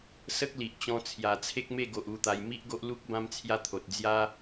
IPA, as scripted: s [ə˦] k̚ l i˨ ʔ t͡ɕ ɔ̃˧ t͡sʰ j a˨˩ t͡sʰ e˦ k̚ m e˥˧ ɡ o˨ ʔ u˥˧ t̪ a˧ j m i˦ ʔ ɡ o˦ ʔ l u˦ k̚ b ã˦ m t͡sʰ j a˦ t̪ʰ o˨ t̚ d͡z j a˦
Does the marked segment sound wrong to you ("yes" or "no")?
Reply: no